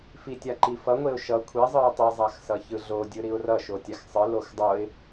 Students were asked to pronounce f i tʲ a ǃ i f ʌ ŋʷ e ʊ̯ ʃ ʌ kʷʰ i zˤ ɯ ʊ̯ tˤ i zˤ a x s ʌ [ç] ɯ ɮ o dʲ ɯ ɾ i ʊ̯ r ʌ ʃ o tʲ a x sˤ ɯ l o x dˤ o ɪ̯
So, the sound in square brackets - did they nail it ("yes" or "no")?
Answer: yes